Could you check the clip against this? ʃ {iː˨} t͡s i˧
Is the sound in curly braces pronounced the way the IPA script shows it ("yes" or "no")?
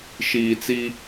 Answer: yes